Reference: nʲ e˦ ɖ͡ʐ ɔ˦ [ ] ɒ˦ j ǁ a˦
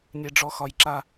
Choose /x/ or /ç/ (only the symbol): x